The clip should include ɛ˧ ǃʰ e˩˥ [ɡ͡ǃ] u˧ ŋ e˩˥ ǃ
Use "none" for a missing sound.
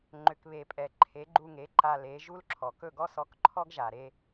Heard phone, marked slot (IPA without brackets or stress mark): ɡ͡ǃ